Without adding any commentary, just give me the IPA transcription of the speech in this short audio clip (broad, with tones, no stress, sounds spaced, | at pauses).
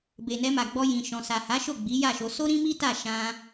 b e˨ n ɛ˧ m a˨ ɡ͡b ɔ˧ j ĩ˨ ʃ ɔ̃˨ s a˨ h a˨˦ ʃ o˦˨ ɡ͡b i˨˦ j a˦˨ ʃ o˧ s o˦ ɾ ĩ˦ m i˦ t a˦˨ ʃ ã˧